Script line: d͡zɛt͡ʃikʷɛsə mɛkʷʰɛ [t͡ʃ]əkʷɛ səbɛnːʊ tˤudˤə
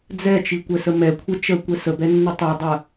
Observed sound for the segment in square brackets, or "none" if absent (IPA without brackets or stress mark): t͡ʃ